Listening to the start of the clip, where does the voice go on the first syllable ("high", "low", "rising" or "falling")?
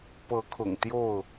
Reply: rising